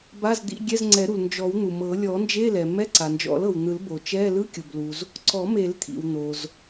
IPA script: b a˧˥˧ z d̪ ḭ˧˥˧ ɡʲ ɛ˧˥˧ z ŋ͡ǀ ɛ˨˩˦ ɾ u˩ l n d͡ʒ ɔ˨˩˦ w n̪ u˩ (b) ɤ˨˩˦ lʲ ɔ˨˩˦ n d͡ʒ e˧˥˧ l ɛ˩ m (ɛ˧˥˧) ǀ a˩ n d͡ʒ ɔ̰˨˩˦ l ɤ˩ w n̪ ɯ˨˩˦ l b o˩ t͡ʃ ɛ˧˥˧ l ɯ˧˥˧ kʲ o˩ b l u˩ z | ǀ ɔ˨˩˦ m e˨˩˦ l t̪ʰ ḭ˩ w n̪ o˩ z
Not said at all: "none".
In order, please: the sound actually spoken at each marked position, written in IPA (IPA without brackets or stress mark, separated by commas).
m, ɛ˧˥˧